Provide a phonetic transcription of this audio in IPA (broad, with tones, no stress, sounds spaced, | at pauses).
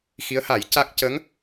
x i˧˥ ə̯ h a˨˩˦ j c a˦˥ k̚ c ə˧˥ ŋ